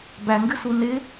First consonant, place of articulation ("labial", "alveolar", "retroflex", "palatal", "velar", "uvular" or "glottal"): labial